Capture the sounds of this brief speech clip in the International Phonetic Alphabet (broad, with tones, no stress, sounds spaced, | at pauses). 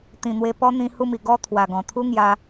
t̪ ĩ˨˩ n̪ w e˧ p ɔ˦ n̪ ĩ˧ h u˧ m i˨˩ ɡ ɔ˧ t̪ʰ w a˨˩ ɡ ɔ̃˨˩ t̪ʰ u˦ ŋ j a˧